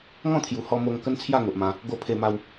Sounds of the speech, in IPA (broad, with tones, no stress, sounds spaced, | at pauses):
ŋ ɔ̃˥˧ t̪ʰ j u˨˩ h ɔ˧ m o˧ ŋ k ə˦ n t͡sʰ j a˥˧ ŋ o˨ ʔ m ã˧ | ɡ o˧ pʰ e˧ m a˧ w